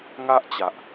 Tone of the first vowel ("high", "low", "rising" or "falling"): high